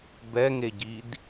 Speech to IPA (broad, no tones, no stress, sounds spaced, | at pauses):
b ɛ ŋ e ɟ i d